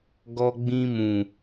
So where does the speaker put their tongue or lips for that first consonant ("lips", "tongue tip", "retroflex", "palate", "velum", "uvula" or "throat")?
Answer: velum